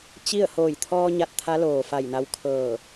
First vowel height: high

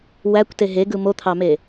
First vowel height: low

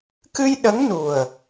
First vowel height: high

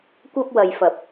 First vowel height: low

